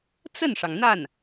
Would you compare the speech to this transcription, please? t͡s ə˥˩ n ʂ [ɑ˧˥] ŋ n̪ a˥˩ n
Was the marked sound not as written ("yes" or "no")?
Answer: yes